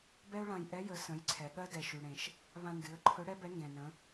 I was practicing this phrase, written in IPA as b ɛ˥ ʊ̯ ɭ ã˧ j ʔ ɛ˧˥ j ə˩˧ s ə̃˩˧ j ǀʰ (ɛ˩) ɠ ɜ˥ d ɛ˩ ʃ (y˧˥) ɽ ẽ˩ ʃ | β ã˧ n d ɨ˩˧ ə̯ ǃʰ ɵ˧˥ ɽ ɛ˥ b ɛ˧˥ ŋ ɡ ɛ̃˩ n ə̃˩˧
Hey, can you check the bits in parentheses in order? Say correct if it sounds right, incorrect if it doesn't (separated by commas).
correct, incorrect